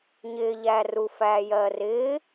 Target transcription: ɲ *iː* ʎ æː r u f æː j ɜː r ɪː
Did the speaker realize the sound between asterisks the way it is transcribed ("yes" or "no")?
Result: no